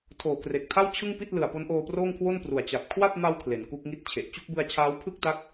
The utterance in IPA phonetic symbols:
tʰoː˨˩kre˨˩k̚tʰa˥˩w t͡ɕʰɯ˥˩ŋpi˥˩t̚lɯ˨˩a̯ po˦˥nʔoː˧proː˥˩ŋkʰwo˥˩n pru˨˩a̯t͡ɕa˨˩p̚ kʰwa˥˩t̚ma˧w kʰle˩˦nku˦˥k̚ŋi˥˩t̚t͡ɕʰe˨˩ʔ t͡ɕu˥˩k̚bɯ˧a̯t͡ɕʰaː˦˥w pʰɯ˥˩k̚ta˦˥k̚

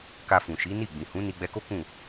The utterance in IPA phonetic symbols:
ka˧fũ˨ʃi˨˦ ni˦˨ ɡ͡bĩ˨hũ˨˦ ni˧ɡ͡bɛ˧ko˦ kũ˦˨

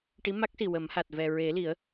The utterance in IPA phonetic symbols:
ʈi˧˥ma˦˥k̚si˨˩ wə˨˩˦mha˨˩t̚ vɛ˨˩ ɹe˨˩˦li˨˩˦ə̯

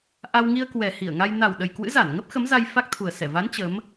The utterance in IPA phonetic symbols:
ʔa˧wŋi˧ə̯ kwɛ˨˩hi˧˩ə̯ ŋa˧j na˨˩wɗə˨˩j kwɨ̰˧˥za˧˩nŋə˦˥p̚ xə˨˦mza˧j fa˦˥k̚t̪ʰu˨˩ə̯ sɛ˧˩va˨˦n t͡ɕə˨˦m

